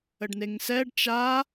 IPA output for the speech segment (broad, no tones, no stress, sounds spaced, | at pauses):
ə ɖ n e ŋ s ɛ ɖ t͡ʃ a